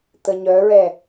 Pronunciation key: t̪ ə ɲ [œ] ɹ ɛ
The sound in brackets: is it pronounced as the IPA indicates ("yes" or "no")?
yes